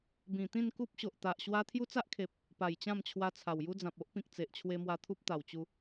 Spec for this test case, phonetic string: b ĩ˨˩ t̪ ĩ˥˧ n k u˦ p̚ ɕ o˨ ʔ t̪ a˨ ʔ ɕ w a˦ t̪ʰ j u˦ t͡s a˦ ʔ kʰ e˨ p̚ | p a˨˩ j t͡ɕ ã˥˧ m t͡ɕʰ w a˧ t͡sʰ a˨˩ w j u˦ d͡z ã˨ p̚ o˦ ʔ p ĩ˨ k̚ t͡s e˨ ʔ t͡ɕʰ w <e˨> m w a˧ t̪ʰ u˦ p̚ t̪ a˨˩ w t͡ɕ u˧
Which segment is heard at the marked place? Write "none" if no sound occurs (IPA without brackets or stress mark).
e˧